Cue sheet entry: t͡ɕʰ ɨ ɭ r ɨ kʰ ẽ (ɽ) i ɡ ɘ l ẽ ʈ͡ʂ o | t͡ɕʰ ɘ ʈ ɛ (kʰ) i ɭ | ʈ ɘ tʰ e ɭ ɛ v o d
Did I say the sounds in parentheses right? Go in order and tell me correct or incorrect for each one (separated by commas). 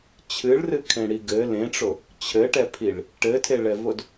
correct, incorrect